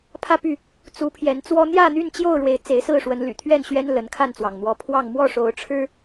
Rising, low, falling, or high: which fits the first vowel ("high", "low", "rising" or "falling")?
falling